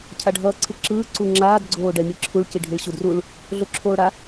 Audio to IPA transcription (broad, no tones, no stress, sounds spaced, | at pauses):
cʰ a ɖʱ ʌː ǀʰ ɯ ǁ ɯː ǀ u ŋ͡ǁ aː d ɡ͡ǀ oː ɖ ɛ mʲ ɯ ǁʰ u ɭ c i ɖʱ i ɭ ɕ u d r u ɭ | ɮ o ǁʰ oː ɽ a